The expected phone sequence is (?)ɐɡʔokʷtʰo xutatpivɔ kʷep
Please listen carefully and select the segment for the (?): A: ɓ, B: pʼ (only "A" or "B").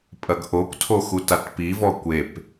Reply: B